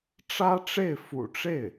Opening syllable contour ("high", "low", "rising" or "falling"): high